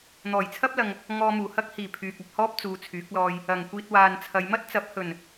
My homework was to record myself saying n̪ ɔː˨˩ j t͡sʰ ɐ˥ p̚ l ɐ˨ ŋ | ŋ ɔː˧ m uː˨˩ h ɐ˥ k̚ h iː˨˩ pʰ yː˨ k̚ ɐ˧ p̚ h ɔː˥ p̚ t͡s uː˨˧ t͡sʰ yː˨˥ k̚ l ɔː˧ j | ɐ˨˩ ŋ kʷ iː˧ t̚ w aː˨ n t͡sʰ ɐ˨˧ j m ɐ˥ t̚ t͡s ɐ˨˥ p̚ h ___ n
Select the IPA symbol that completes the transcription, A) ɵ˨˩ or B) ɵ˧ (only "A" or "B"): A